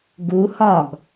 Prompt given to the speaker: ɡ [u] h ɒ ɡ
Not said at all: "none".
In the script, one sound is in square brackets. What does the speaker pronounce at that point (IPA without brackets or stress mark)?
u